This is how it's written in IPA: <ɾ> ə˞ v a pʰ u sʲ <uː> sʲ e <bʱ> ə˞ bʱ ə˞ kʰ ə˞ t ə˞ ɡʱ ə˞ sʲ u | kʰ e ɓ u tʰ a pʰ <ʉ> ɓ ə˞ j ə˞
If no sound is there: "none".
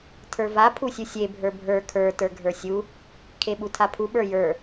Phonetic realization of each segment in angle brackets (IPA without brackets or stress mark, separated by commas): tʰ, u, bʱ, u